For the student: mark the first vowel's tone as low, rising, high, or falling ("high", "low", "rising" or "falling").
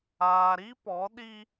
low